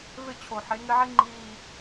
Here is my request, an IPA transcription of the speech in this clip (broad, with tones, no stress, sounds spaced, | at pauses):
v ɪ˦˨ t͡ɕʰ o˨ ħ e˨˦ ŋ ɪ˦ ʕ i˦ ŋ͡ǃ iː˨